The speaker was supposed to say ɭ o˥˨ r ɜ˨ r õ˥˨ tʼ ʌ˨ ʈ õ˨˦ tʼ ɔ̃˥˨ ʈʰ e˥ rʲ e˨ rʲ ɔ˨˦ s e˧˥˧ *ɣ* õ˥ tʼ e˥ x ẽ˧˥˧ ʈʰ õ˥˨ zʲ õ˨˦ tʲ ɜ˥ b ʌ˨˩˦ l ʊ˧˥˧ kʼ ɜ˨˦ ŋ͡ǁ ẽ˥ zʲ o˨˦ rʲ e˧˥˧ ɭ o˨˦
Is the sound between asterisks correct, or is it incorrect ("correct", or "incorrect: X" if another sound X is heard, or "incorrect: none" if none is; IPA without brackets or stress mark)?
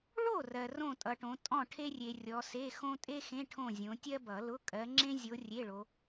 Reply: incorrect: x